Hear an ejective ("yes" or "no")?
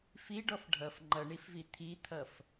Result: no